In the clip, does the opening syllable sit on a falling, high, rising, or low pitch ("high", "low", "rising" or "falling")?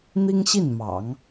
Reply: high